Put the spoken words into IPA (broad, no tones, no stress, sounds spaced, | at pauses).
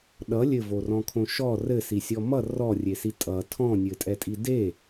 ɗ ʌ lʲ ɘ v o r ɔ̃ kʰ õ ʃ ɔ r ɘ s i sʲ ɔ m ʌ r ɔ rʲ e s i tʼ ʌ tʰ ɔ̃ nʲ ɘ tʼ ɛ tʼ i d e